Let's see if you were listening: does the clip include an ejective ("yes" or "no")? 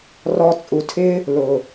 yes